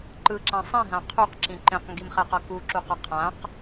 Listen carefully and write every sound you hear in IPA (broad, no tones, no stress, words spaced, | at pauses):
ǃɯǁã sˤĩɦã qʰuqǁĩ ǃẽqŋɡimχɛqʌ kuǁuqʌ qʰãq